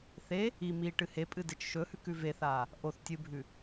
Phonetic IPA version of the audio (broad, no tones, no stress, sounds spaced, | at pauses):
θ e | i m i ʈ ɨ h e pʼ ɨ d e t͡ʃ ʃ ɵ h ʉ k ʉ v e θ aː | ʔ o θ tʲ ɨ bʱ ʉ